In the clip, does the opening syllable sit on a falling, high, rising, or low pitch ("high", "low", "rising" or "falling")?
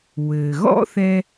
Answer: low